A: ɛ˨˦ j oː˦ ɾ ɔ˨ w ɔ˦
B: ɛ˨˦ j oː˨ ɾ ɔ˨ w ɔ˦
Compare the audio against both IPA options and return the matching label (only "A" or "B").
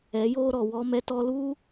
A